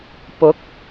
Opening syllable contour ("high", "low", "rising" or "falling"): rising